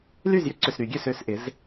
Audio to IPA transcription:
l y˥˩ z j ʏ˦ ǀ ʏ˨˩ s ɾ y˨˩˦ ɡʲ ø˨˩ s ø˥˩ s ʔ ɪ˩˥ z

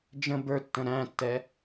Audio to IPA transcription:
d͡ʒ ə̃ b ə˞ tː ə̃ ɾ æ̃ tː ɛ

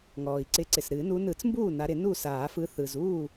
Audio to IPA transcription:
ŋ ɔː˩ i̯ ǀ ɪ˨˦ ǀ ɪ˩ s ɾ ɨː˨˩˦ n u˨˦ n ɯ˨˩˦ t͡s m b uː˥˩ n a˨˦ ɾ ɪ˨˩˦ n u˥˩ s aː˨˩˦ f ɯ˨˦ θ ɯ˩ z uː˥˩

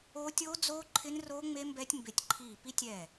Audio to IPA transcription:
o˦˥ tʲ o˦˥ d͡z oː˦˥ ǃʰ ɪ˦˥ n r oː˦˥ ŋ͡m e˦˥ m b ɛ˦˥ tʲ m b e˧˩ tʲ ǃʰ iː˧˩ p i˦˥ tʲ ɛː˧˩

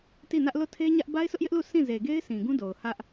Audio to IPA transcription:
t i˦˨ n ä˦ ʔ l o˦˨ tʰ e˦ ɲ ä˦ ʔ b a˦ ɪ̯ s ʊ˦ ʔ j ɪ˦ ʔ l u˦˨ sʰ ĩ˦˨ z e˨ ɡ e˦ ɪ̯ s ĩ˨ ɡ ũ˦ d o˨ ʊ̯ h ä˦ ʔ

